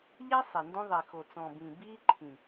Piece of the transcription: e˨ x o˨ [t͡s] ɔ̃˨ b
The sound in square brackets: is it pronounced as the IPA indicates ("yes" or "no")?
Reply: yes